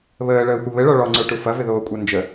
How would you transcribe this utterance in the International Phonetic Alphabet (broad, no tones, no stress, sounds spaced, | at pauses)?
β əː ɭ əː xʷ ə β ɘ ɭ ɔ ɭ ɔ ŋ͡ǀ ə˞ ʈ u f ɐ v ɪ ð oː kʷʼ a n d͡ʒ ə